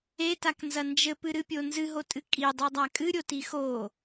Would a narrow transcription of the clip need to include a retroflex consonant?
no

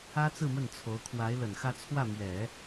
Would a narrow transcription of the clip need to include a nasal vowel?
no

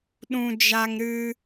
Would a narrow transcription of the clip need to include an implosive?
yes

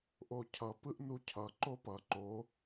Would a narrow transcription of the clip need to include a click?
yes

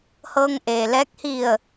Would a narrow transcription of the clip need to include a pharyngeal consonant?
no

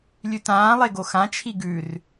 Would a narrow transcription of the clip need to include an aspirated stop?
yes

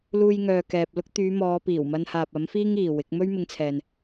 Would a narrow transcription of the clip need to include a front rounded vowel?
yes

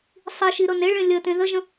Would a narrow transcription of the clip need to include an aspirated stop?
no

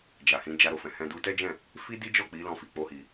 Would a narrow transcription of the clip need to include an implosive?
no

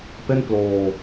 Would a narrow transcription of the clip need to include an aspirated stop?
no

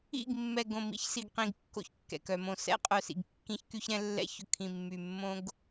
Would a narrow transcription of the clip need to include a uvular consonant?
yes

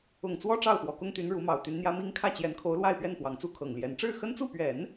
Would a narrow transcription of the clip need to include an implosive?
no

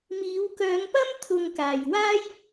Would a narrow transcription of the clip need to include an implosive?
no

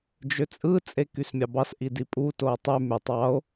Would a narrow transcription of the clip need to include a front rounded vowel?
yes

